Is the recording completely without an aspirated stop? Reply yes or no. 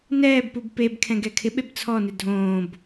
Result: no